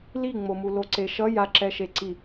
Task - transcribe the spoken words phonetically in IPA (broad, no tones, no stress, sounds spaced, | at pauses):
l i ŋ͡m o m u l o ǀ e ʃ ʌ j a ǁ ɛ ʃ e ǀ i